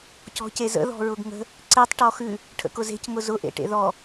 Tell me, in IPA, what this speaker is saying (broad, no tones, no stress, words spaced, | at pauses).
cɔ̤cezə̰ ðɔ̤ɹʊɡŋə̤ | ǀetˤ ʈɔxʉ | ʈʰə̰kʊze̤c ŋʊzʊ ʔḛʈḛðɔ